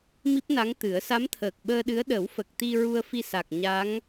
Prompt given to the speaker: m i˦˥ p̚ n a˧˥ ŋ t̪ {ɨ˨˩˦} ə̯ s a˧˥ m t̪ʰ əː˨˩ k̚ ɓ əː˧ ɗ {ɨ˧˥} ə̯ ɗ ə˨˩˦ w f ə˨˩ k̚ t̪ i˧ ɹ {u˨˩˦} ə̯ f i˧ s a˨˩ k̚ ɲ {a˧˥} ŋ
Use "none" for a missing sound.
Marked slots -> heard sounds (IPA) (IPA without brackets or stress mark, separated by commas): ɨ˨˩˦, ɨ˧˥, u˧, a˧˥